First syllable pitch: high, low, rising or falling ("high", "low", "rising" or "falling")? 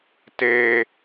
high